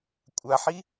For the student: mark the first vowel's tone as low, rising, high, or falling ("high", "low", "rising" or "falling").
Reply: low